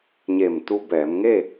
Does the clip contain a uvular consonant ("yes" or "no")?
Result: no